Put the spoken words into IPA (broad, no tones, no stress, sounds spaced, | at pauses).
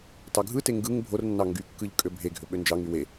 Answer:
t ɑ ɡʱ ɯ t e ŋ ɡ ɯ ŋ bʱ o r nː ɑ ŋ ɡ y kː ɯ ʎ kʼ ø bʱ e ɡʱ ø ɓ ø n d͡ʒ ɑ ŋ y w e